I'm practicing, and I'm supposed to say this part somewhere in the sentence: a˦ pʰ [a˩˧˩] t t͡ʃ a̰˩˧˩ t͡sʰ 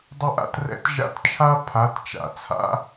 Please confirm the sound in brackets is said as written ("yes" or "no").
yes